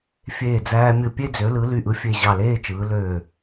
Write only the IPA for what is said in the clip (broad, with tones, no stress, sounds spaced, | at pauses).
fʲ eː˧˩ d͡z æː˧ mʲ ɯ˧˩ pʲ e˥˧ d͡z ø˩˧ l ɯ˩˧ l y˧˩ ʔ ɯ˧ fʲ e˧˩ ʑ ɑ˧˩ l eː˥˧ t͡ʃ ɯː˩˧ l øː˧˩